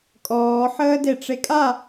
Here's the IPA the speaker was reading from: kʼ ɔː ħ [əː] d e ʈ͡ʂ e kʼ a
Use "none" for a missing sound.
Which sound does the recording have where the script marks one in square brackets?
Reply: əː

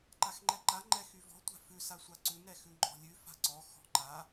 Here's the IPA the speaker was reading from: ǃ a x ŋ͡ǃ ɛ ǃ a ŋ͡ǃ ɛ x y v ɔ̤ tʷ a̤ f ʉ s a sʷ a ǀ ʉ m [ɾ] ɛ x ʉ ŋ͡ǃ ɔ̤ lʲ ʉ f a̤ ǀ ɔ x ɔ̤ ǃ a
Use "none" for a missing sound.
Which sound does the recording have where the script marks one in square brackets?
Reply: ɾ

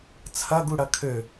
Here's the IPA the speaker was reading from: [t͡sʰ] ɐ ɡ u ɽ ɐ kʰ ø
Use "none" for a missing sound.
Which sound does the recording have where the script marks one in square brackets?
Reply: t͡sʰ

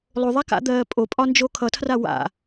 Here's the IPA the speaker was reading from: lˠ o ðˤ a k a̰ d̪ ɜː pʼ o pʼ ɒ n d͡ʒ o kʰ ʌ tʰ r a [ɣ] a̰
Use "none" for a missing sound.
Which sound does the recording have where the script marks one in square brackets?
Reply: w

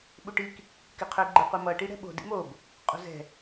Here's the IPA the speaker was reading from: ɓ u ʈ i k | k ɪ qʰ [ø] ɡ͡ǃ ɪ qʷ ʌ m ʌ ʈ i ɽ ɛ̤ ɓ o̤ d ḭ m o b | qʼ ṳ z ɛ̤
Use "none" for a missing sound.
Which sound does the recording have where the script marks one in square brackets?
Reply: ø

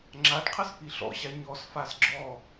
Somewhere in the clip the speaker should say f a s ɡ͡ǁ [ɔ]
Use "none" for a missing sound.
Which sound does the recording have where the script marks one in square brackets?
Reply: ɔ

